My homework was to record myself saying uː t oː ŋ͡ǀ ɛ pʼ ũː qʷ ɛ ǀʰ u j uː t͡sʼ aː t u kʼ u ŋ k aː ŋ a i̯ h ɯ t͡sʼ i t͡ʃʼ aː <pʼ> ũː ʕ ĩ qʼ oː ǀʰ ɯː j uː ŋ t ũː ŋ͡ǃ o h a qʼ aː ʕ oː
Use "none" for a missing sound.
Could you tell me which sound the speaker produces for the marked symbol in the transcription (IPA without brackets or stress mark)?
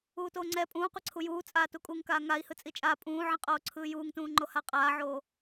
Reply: pʼ